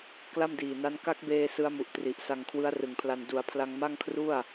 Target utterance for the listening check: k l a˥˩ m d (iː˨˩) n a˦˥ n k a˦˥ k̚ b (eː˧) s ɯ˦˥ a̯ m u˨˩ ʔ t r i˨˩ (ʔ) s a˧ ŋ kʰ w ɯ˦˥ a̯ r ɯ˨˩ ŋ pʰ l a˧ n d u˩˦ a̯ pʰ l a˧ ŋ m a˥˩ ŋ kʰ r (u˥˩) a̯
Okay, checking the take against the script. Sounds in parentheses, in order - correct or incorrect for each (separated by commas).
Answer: correct, correct, correct, correct